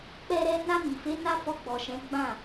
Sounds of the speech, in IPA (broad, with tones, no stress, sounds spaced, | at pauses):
k͡p ɛ˦ ɾ ɛ˦ n a˧ m i˨ f e˨˦ n a˦ f ɔ˧ ɡ͡b ɔ˨ ʃ ɛ̃˨˦ ɡ͡b ã˦˨